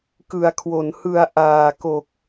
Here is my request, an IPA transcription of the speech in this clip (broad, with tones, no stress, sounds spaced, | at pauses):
k ɯ˩˦ a̯ kʰ w o˩˦ n h ɯ˨˩ a̯ ʔ aː˨˩ k o˨˩ k̚